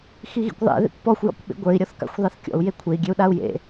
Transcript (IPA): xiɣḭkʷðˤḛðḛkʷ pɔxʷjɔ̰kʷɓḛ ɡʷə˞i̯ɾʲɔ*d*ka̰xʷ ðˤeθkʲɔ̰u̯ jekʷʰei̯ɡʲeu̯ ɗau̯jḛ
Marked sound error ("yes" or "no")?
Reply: yes